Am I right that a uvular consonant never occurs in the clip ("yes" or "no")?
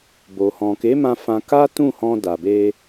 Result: yes